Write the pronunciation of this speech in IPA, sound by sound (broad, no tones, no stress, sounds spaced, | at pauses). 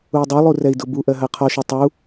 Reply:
u y̯ dˤ e lˠ u r ɛ i̯ d ʊ b u ʔ ɜ ɦ ɜ qʰ ɔ ʃ y tˤ u